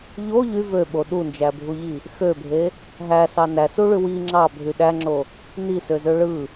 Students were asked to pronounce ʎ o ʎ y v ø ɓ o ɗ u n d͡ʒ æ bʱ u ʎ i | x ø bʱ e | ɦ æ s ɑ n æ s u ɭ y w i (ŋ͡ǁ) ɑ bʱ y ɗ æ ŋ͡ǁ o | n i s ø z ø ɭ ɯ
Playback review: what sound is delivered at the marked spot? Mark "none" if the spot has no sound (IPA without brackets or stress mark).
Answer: ŋ͡ǁ